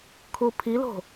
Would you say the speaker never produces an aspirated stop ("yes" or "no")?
no